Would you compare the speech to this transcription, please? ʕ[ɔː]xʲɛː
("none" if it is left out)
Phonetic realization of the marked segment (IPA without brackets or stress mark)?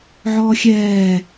ɔː